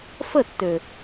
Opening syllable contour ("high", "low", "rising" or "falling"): falling